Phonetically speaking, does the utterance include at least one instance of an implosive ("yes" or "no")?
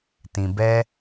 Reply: no